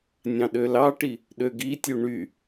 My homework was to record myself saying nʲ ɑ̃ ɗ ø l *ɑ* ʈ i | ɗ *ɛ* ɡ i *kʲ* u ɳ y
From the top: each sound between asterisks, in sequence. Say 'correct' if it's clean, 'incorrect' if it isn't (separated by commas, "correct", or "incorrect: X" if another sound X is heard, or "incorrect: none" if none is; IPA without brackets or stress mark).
correct, incorrect: ø, incorrect: tʲ